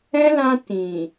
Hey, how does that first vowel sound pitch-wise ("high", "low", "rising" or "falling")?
high